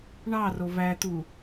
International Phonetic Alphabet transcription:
ɳ ɑ r o v æ t̪ u

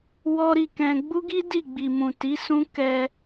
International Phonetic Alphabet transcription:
w ɔ˦ ɾ i˦˨ k ɛ̃˧ ɡ͡b u˦ ɡ i˦ d i˦˨ ɡ͡b i˨ m ũ˨ t i˨˦ s ũ˦ k ɛ˧

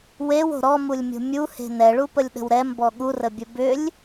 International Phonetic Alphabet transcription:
w e w o̤ ɾ ɔ m u lʲ mʲ o̤ mʲ u h e̤ n ɛ ɭ u p ə lʲ ɗ ə̤ w ɾ ɛ m b ɔ ɠ u r ə bʲ ə b ʏ lʲ

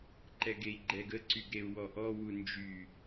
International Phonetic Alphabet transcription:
ǃ ɛ ɡ e i̯ ɡ͡ǃ ɛ ɡ ə ǀ y ɡ ɾ e u̯ w ɔ ʔ ɔ w u n d͡ʒ y

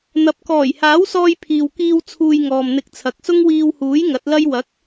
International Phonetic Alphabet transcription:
n̪ ɐ˨ p̚ k ɔː˨˩ j h aː˨˥ w s ɔː˧ j pʰ iː˨ w k iː˧ w t͡sʰ uː˧ j ŋ ɔː˨ m n̪ ɪ˧ k̚ t͡sʰ ɐ˨ k̚ s ʊ˥ ŋ w iː˧ w h uː˨˥ j ŋ ɐ˨˥ t̚ l ɐ˥ j w ɐ˨˥ k̚

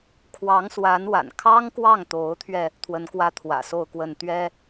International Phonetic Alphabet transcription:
kʰ w ɑ˧˥ ŋ s w a˧˥ n w a̰˨˩ n kʰ ɑ˥ ŋ k w ɑ˥˩ ŋ t̪ o˧˥ ʊ̯ t̪ʰ ɥ ɛ˧ | t̪ʰ w ə˧˥ n k w ä˥ t̪ʰ w ä̰˨˩ s o˥˧ ʊ̯ k w ə˥˩ n t̪ ɥ ɛ˥

